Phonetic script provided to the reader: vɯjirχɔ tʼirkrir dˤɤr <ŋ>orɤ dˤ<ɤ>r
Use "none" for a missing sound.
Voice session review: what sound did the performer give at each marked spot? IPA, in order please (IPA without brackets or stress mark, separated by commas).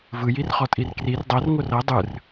ŋ, ɯ